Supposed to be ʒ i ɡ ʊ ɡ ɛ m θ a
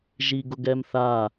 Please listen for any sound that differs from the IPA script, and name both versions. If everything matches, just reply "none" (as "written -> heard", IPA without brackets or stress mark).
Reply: none